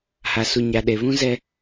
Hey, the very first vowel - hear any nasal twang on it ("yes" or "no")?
no